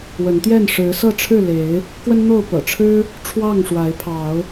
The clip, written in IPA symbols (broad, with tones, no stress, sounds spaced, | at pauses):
w ə˨˦ n t̪ j ɛ˥˨ n ʂ ɻ̩˨˦ s ɤ˥˨ ʈ͡ʂʰ ɻ̩˥˨ l e˨˦ ɪ̯ | k w ə˦ n n̪ o˥˨ ʊ̯ p ɤ̰˨˩ ʈ͡ʂʰ ɻ̩˦ | ʈ͡ʂʰ w ɑ˥˨ ŋ ʂ w a˨˦ ɪ̯ pʰ ɑ˨˦ ʊ̯